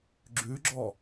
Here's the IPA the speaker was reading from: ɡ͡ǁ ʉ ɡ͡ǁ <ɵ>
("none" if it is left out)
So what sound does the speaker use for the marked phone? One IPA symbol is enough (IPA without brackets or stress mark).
ɔ